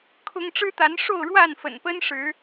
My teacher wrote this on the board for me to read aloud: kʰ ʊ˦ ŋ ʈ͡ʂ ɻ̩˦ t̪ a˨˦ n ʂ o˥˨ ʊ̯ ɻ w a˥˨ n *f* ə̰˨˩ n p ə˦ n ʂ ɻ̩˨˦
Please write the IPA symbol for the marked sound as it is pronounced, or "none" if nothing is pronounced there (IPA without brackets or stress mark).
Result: f